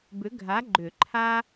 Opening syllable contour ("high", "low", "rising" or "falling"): rising